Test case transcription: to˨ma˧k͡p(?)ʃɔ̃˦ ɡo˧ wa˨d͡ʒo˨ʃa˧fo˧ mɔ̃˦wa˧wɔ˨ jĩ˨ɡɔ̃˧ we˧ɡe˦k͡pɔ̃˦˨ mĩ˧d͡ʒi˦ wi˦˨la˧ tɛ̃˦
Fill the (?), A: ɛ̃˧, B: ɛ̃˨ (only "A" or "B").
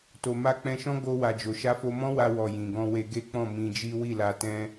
A